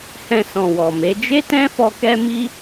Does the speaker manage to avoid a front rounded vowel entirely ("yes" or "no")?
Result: yes